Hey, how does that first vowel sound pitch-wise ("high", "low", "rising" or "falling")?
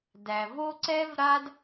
low